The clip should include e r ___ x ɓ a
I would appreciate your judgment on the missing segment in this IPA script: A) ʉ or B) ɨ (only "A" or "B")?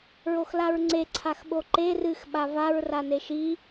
B